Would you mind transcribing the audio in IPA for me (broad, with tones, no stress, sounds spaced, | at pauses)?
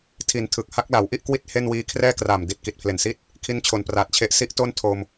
tʰ i˨˩ n tʰ ɯ˨˩ k̚ h a˦˥ k̚ l a˩˦ w ʔ i˥˩ ʔ k w i˥˩ t̚ h e˥˩ n w iː˦˥ kʰ r ɛː˥˩ k r aː˨˩ m d i˨˩ t̚ k i˨˩ t̚ pʰ l e˨˩ n s i˥˩ t̚ | kʰ i˦˥ n t͡ɕʰ o˨˩ n p r aː˨˩ t̚ t͡ɕʰ e˦˥ ʔ s i˦˥ ʔ t o˥˩ n tʰ o˧ m